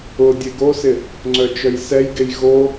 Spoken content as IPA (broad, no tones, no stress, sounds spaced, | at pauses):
ʊ dʲ e ɡ o s ɪ | ŋ͡ǀ œ t͡ʃ œ j s ɛ j ɡ e j ɣ o